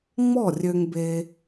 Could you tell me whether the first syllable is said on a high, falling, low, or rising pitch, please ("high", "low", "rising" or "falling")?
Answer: falling